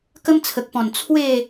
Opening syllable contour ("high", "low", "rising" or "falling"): high